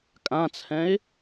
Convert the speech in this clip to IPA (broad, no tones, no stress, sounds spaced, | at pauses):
kʼ ã t͡sʰ ɛ̃ ɪ̯